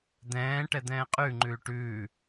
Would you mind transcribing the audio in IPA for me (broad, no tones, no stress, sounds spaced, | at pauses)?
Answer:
d̪ ɛ̃ː ʈ ɛ d̪ ɛ̃ː qʼ ʉ ŋ͡ǃ ʉː ʈ ʉː